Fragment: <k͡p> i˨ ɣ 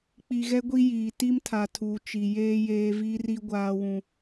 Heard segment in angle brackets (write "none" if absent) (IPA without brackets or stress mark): k͡p